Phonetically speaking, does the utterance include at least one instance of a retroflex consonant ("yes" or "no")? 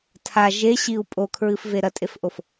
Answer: no